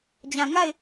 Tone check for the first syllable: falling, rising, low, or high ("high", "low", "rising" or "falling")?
low